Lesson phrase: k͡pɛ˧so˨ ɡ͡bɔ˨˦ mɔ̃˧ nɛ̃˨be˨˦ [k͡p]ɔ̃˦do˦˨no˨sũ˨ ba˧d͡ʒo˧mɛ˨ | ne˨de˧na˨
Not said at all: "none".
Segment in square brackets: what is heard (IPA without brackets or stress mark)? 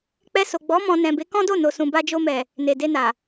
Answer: k